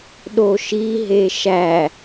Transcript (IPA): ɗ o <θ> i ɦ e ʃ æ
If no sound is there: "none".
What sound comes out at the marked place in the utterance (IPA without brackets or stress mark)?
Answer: ʃ